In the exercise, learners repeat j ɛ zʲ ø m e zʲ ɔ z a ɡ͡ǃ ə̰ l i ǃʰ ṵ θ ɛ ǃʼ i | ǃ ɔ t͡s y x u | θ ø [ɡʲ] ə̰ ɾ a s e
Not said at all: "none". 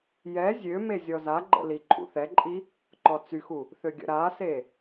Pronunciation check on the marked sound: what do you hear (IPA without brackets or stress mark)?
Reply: ɡʲ